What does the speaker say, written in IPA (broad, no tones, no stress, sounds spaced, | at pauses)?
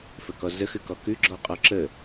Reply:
f ə k ɔ z ə x ʉ k ɔ k ʉ ɡ͡ǁ ɔ qʼ ɔ ǁ ə